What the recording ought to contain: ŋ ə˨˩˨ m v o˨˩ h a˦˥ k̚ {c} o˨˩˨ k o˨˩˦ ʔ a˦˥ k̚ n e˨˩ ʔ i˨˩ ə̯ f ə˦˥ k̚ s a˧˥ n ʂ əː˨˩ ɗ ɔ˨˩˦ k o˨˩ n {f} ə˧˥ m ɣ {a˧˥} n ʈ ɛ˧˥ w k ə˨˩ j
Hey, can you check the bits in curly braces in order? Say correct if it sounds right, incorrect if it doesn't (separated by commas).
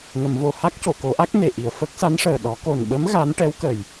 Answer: correct, incorrect, correct